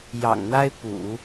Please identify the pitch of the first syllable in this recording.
low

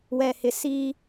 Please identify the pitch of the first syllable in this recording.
low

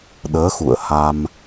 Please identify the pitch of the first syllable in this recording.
rising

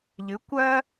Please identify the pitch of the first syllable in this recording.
rising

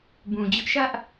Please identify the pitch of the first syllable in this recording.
low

